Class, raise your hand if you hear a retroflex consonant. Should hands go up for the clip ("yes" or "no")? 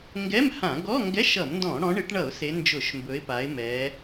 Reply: yes